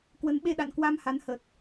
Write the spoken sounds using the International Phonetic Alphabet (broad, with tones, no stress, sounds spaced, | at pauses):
k w ə˨˦ n ɓ e˧ ɗ a̰˧˨ n k w a˧ m h a˨˦ n h ə˨˩ t̚